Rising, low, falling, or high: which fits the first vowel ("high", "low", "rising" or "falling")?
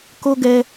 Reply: high